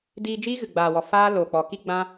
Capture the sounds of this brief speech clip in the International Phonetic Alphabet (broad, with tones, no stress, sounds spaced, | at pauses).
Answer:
d iː˧ d͡ʒ iː˦ ɣ ɨ˨ ɡ͡b aː˨ w ɔ˨ f aː˦ l oː˨ k͡p ɔ˨ k i˦ ɡ͡b ã˧